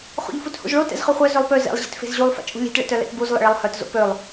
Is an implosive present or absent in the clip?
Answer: absent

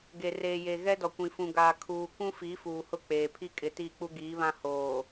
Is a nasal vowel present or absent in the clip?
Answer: present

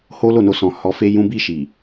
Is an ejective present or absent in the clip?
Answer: absent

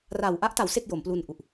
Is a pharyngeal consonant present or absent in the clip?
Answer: absent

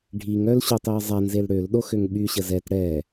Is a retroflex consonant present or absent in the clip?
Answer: present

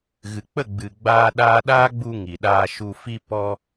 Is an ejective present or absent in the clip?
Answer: absent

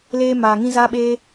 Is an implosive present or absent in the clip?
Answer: present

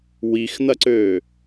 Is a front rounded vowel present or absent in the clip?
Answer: present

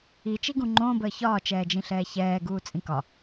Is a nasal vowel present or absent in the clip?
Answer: present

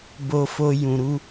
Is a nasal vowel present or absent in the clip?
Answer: present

